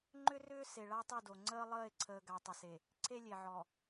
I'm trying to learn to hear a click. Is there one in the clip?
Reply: yes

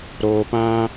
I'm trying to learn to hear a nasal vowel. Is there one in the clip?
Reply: yes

